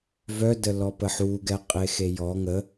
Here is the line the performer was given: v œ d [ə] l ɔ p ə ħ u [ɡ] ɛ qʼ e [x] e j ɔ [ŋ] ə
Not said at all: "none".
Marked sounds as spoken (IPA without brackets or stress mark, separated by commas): ə, ɡ, x, ŋ